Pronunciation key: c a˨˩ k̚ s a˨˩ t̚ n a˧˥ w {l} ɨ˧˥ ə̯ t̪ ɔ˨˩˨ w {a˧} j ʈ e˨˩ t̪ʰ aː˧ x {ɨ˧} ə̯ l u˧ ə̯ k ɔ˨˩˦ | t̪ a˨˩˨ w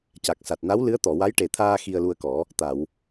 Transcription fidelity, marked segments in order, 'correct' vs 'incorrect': correct, incorrect, incorrect

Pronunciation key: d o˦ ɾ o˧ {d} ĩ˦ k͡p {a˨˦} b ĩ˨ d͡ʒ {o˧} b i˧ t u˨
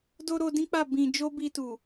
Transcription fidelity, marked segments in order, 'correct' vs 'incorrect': correct, incorrect, correct

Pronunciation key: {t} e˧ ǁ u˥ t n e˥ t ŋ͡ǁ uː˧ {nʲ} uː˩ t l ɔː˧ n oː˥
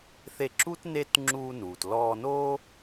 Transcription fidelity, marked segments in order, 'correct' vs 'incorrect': incorrect, incorrect

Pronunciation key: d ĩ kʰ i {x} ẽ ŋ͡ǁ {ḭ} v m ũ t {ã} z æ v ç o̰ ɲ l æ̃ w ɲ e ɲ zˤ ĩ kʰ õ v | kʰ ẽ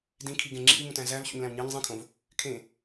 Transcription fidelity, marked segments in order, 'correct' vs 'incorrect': incorrect, correct, incorrect

